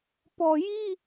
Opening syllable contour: low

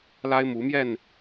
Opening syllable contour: high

